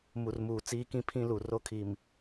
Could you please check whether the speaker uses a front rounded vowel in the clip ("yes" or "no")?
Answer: no